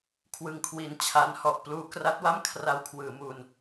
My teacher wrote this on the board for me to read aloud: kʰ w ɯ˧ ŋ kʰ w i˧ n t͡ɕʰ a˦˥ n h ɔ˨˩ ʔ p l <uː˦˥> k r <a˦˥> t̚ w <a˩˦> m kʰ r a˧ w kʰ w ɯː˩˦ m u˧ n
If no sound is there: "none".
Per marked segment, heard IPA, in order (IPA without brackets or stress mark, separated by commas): uː˦˥, a˦˥, a˥˩